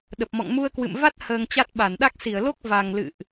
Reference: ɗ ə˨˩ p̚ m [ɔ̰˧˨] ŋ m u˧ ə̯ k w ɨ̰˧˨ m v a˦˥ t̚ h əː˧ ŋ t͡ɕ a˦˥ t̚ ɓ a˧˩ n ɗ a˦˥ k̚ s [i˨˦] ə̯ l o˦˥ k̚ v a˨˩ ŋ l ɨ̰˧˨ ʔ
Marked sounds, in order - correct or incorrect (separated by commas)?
correct, incorrect